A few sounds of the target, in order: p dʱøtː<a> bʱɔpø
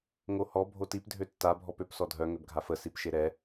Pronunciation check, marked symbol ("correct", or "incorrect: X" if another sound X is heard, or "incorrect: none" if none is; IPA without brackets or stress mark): correct